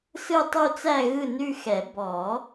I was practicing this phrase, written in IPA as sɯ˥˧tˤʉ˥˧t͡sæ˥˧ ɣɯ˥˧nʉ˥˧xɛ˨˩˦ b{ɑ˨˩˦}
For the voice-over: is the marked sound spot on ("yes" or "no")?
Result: no